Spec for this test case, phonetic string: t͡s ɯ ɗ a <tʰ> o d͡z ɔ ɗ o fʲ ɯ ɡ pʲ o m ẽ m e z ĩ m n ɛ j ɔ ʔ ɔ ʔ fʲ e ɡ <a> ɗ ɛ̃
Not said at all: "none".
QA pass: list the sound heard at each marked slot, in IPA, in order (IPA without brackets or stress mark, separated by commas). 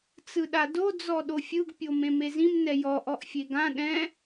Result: d, ã